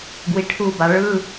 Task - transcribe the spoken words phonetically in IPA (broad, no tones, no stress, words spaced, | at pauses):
ɡwiʈʰuba ɭɯ